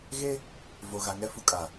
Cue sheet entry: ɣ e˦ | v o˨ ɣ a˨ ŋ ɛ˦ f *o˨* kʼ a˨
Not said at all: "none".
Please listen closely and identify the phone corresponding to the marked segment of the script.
u˨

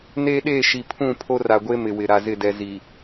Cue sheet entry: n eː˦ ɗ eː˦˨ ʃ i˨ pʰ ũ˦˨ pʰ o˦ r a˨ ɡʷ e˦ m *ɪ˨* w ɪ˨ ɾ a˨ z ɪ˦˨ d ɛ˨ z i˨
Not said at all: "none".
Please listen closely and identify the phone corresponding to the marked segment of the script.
ɪ˨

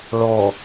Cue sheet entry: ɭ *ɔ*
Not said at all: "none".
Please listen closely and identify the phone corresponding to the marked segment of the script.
ɔ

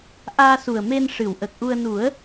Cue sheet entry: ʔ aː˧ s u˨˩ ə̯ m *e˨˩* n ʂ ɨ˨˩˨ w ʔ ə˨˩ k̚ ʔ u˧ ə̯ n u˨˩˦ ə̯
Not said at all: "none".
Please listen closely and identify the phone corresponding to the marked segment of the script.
e˧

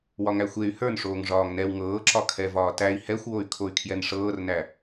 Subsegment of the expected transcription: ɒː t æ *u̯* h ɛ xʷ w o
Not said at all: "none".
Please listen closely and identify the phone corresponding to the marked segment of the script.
i̯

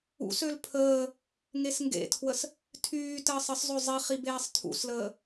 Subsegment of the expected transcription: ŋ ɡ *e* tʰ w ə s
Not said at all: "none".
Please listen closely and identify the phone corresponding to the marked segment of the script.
ḛ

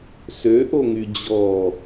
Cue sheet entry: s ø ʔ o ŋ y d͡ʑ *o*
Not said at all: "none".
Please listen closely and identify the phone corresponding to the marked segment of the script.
ɔ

